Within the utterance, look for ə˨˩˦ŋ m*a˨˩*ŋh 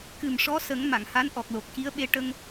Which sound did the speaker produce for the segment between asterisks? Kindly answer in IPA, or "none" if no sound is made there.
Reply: a˨˩˨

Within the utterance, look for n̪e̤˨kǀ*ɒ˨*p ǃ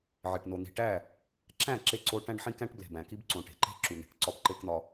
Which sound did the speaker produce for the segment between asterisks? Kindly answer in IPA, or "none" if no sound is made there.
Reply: ɒ˦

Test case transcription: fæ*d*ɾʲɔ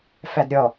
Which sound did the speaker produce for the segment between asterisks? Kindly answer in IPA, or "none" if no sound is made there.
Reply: d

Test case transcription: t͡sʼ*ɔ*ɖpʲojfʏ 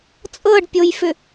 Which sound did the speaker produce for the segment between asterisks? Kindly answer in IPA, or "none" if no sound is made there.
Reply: ɤ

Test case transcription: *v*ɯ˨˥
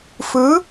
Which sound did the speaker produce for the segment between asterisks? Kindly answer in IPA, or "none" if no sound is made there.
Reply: f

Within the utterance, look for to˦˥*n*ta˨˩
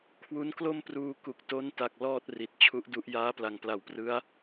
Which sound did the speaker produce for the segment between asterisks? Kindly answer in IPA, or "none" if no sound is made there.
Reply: n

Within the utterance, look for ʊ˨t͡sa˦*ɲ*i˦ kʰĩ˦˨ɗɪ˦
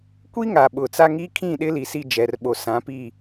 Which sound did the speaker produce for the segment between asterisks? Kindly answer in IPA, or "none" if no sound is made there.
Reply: ŋ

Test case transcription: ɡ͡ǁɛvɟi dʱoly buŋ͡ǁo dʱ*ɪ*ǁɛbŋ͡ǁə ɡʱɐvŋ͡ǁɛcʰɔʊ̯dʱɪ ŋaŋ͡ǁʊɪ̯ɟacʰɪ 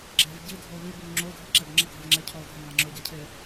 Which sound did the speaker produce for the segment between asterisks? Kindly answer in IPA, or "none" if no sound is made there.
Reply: i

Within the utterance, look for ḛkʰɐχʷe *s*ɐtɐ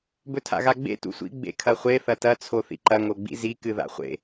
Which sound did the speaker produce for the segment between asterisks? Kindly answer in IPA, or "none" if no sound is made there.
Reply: θ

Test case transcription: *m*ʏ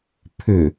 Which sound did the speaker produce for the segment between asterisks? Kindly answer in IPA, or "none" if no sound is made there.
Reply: pʰ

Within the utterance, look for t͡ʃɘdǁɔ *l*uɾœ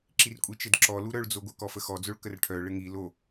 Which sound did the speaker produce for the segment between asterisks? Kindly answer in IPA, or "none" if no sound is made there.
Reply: l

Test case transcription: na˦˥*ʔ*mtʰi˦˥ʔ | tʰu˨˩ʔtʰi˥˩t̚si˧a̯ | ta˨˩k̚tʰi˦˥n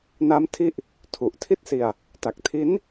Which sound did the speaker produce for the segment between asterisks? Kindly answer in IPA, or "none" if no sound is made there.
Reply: none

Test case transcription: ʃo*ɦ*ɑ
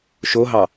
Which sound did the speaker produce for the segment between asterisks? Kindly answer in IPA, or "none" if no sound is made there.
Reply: ɦ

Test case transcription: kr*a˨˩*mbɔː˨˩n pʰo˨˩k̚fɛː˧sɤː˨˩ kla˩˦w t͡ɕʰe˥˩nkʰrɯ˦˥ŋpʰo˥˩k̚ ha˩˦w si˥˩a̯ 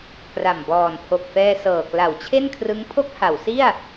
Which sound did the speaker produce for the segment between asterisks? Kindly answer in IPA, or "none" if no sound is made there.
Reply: a˨˩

